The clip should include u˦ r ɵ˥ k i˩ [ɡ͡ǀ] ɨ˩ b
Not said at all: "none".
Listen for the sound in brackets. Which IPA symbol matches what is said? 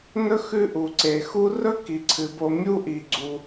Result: ǀʰ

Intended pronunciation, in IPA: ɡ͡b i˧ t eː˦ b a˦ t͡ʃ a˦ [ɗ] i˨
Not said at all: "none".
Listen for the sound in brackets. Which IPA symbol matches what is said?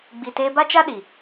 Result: ɗ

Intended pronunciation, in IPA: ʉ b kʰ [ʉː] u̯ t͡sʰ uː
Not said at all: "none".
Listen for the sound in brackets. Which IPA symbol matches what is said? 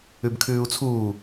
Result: ʉː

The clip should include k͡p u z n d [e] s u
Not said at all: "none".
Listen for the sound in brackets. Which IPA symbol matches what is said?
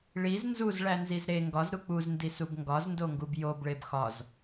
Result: i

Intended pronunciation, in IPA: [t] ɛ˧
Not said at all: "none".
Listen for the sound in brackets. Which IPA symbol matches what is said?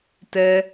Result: t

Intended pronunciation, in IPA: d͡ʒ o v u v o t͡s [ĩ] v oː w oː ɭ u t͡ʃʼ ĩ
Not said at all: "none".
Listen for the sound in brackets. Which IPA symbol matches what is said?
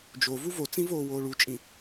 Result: ĩ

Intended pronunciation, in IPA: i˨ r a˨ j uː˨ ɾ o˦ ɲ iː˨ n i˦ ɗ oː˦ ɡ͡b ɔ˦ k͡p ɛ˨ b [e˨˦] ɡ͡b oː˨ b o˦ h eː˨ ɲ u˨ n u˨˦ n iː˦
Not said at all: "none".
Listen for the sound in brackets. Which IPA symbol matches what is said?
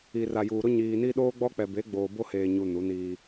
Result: e˨˦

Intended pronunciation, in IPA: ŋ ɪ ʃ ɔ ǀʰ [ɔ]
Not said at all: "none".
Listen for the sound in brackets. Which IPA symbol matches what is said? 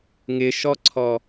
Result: ɔ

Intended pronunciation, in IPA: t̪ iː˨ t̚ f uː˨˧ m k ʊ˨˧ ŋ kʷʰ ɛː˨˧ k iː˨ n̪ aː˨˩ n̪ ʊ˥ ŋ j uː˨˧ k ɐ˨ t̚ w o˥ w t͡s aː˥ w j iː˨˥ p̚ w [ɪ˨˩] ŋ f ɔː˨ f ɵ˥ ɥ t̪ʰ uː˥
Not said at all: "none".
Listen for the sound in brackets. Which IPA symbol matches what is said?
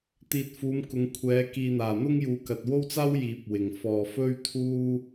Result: ɪ˨˩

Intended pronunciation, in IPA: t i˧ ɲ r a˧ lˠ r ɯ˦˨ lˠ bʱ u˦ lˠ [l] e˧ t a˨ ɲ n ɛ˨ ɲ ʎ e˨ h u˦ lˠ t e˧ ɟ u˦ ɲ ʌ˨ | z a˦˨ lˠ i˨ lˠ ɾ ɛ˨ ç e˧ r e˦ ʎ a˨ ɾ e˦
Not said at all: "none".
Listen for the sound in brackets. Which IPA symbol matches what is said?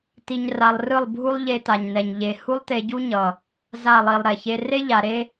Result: ʎ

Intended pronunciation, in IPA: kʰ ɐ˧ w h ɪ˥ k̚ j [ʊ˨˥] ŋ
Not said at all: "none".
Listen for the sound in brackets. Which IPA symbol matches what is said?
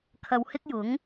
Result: ʊ˨˥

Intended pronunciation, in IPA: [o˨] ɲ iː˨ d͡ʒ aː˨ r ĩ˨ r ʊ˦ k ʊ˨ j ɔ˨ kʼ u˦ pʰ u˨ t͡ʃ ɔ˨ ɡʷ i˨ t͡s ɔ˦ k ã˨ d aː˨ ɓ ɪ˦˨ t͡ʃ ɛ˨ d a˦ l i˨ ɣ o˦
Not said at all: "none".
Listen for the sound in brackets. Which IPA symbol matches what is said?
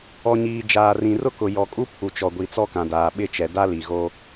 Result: ɔ˨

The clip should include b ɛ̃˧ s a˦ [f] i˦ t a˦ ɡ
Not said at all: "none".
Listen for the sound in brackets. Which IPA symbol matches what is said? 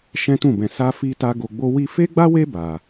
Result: f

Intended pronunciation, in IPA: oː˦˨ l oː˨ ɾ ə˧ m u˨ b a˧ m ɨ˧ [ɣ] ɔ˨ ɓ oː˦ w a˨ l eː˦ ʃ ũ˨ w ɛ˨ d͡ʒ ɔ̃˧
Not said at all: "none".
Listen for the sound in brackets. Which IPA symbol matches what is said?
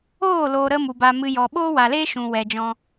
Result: j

